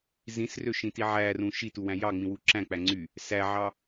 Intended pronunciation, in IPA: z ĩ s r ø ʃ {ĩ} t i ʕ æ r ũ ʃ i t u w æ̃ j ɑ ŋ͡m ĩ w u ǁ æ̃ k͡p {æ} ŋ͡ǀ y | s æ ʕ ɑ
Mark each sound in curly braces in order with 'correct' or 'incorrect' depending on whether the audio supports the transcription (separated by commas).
correct, correct